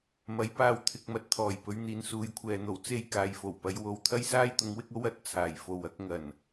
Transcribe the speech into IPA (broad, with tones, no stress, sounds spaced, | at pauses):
m ɐ˨˥ j p aː˧ w t̪ʰ ɪ˧ k̚ m ɐ˧ t̚ t̪ʰ ɔː˨˩ j p ɵ˨˧ ɥ n̪ iː˨ n s uː˨ j kʷʰ ɛː˨ n̪ o˨˩ w t͡s e˥ j k aː˨ j f o˨˩ w p ɐ˨˧ j w o˨ w t̪ʰ ɐ˥ j s aː˥ j t̪ ʊ˨˧ ŋ w ɪ˥ k̚ o˥ w ɐ˨˥ t̚ t͡sʰ aː˨˩ j f o˨ w ɐ˥ k̚ ŋ ɐ˨˩ n